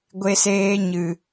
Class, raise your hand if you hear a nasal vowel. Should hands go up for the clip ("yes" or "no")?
no